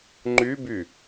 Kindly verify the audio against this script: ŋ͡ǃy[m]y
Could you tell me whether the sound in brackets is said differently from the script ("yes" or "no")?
yes